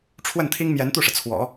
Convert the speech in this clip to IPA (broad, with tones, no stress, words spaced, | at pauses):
ʈ͡ʂʰwə˥˩nt̪ʰi˥ŋ mjɛ˧˥nt̪u˥˩ʂɤ˩ t͡sʰwɔ̰˨˩˦